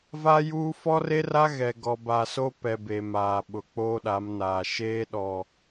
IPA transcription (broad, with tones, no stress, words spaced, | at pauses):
va˦juː˦ fɔ˦re˦ra˦ ɣɛ˨ ɡɔ˨ba˨so˦ pɛ˨ be˨maː˨ ɓʊ˨ k͡poː˦ɗa˨˦mnaː˨ ʃeː˦ɗɔ˨